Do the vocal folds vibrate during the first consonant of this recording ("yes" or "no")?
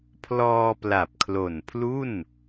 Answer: no